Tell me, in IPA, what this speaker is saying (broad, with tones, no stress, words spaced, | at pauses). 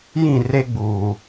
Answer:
jĩ˦˨re˦ɡ͡buː˨